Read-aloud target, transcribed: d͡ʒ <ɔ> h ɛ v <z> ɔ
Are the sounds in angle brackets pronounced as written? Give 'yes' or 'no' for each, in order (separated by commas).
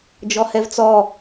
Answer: yes, no